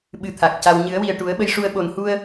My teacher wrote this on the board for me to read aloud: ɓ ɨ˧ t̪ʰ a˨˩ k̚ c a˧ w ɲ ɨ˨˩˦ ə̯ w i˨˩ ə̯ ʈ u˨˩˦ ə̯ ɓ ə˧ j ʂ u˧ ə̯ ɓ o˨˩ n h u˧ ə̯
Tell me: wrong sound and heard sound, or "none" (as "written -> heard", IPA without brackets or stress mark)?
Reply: none